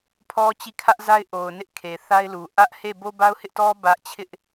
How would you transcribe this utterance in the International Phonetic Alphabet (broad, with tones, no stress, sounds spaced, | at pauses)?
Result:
pʰ ɔ˦ t͡ɕ i˦˨ kʰ ä˦ ʔ z a˦ ɪ̯ ʔ o˨ ʊ̯ n ɪ˦ ʔ kʰ e˨ θ a˦ ɪ̯ l u˨ ʔ ä˦ ʔ h e˦˨ b o˦ b a˦ ʊ̯ h ɪ˦ ʔ t ɔ˦ b ä˦ ʔ t͡ɕʰ ɪ˦ ʔ